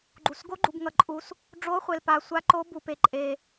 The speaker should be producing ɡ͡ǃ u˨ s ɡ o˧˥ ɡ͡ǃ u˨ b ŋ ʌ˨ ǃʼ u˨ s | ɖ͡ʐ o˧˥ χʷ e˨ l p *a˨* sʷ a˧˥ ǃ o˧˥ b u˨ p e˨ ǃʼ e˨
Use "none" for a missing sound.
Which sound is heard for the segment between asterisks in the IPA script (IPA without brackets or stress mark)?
a˨